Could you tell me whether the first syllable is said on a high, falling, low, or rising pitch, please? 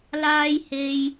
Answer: high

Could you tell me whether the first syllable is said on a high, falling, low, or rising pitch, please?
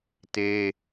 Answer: high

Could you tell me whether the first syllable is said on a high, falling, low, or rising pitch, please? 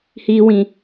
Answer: high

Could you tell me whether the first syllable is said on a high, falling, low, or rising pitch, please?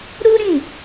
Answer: high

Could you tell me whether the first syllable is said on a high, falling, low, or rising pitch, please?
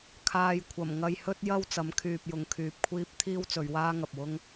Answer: low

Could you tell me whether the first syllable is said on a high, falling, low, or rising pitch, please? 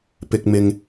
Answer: low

